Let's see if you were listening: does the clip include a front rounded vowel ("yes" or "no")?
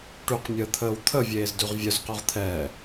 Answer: yes